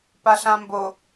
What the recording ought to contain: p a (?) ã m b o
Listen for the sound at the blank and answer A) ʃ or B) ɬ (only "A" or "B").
B